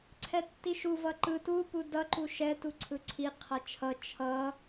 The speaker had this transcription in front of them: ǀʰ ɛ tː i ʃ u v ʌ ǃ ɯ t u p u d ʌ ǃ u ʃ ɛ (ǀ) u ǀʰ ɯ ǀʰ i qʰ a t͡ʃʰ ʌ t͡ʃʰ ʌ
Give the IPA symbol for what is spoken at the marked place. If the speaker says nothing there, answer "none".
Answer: t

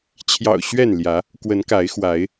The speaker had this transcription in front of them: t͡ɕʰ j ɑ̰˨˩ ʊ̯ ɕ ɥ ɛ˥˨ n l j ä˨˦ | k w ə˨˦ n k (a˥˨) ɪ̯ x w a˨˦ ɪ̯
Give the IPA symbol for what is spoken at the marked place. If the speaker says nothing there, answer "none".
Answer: a˨˦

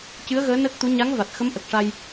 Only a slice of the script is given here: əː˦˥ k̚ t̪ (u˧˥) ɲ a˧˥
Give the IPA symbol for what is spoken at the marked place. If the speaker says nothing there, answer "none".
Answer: u˧˥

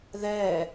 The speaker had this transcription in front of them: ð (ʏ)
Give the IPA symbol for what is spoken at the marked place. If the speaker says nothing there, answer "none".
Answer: ɛ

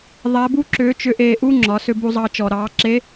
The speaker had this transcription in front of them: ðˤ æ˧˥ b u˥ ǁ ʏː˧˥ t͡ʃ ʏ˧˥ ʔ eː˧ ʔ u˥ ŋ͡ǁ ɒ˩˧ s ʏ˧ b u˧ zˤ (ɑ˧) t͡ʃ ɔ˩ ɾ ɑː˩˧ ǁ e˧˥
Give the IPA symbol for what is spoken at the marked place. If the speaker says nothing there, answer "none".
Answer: ɑ˧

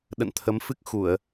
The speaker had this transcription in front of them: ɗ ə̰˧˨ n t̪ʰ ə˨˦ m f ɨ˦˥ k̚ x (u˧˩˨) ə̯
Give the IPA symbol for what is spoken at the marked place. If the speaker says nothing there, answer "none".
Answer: u˧˩˨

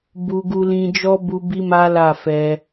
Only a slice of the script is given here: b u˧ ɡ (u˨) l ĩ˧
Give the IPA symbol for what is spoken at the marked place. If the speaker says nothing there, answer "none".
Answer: u˧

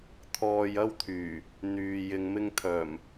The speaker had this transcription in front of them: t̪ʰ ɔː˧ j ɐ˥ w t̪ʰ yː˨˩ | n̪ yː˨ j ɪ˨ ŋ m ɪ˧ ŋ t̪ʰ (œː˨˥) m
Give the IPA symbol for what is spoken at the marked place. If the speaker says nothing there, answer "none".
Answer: œː˨˩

